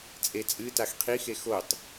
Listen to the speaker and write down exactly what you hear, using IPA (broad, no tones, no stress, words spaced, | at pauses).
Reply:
t͡sʼet͡sʼɨtax qʰixe xotˤ